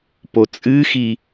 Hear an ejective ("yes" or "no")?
yes